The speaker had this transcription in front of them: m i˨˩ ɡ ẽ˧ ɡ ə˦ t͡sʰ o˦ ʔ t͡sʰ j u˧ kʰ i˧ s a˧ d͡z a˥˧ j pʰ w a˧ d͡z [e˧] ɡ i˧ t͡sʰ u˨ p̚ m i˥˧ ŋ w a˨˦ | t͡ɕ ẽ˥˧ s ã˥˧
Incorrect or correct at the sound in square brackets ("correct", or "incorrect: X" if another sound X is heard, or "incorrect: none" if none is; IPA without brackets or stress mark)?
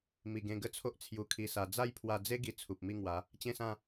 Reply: incorrect: e˦